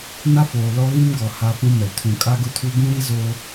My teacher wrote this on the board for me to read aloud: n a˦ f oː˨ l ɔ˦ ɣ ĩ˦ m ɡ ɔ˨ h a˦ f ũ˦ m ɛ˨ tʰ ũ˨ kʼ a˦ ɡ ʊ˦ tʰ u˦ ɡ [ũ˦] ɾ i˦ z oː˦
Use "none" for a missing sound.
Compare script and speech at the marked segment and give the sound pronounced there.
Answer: ũ˦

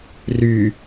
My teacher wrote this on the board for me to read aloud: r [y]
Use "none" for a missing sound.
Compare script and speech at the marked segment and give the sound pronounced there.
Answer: y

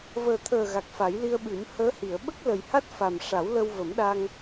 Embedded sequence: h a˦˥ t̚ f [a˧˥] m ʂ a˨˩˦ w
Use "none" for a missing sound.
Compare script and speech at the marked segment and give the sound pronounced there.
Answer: a˨˩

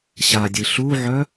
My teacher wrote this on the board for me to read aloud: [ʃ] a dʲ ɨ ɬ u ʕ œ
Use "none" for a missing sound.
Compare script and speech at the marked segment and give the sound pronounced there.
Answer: ɕ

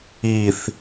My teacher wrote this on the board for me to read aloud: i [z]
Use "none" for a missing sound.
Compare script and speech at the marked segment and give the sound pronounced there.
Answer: θ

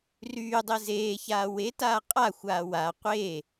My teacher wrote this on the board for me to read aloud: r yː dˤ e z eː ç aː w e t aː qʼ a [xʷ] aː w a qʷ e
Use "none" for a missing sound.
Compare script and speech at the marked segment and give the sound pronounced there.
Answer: xʷ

